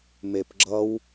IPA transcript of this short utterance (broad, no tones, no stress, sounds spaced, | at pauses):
m e p ɡ͡ǁ ʌ w